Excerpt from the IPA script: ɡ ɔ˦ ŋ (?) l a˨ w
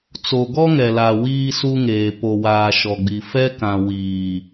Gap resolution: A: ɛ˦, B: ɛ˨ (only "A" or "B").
B